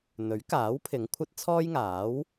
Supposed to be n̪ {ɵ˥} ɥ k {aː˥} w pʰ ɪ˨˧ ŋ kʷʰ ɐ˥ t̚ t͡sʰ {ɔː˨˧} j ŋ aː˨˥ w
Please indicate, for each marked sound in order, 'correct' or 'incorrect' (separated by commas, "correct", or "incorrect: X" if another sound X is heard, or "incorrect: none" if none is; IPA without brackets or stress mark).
incorrect: ɵ˨˥, incorrect: aː˨˥, incorrect: ɔː˥